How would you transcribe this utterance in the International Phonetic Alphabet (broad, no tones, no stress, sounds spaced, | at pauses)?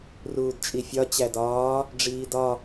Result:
r uː d t͡ʃʼ i fʲ ɒ t͡ɕ æ d ɒː | ɖ͡ʐ iː d ɒ